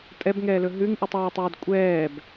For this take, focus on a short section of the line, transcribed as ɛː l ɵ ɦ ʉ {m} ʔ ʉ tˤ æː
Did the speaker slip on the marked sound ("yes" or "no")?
yes